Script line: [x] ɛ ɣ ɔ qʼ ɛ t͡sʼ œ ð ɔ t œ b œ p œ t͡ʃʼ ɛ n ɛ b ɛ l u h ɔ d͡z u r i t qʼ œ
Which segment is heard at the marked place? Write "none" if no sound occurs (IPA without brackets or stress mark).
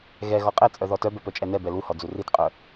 ɣ